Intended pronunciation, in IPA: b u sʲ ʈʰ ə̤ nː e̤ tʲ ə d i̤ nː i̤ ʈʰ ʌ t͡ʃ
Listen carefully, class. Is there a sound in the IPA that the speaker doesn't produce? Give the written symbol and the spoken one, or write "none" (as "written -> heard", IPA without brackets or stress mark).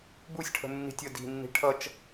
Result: e̤ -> i̤